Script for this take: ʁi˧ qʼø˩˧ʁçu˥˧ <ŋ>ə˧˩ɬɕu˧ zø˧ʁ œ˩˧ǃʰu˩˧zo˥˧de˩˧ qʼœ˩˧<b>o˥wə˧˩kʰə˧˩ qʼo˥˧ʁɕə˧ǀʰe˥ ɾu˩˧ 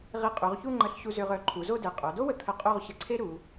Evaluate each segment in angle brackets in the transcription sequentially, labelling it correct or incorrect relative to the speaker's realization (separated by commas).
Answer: incorrect, incorrect